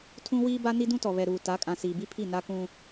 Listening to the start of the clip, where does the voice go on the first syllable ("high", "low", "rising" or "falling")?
high